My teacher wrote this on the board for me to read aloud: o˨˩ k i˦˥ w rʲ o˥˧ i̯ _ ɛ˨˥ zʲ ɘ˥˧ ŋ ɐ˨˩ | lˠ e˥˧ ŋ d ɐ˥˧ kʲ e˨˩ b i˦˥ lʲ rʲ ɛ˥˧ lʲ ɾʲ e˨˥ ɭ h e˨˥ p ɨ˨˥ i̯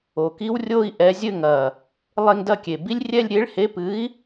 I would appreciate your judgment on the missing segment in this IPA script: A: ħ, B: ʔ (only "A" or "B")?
B